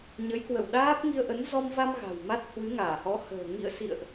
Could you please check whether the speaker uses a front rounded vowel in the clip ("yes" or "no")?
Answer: no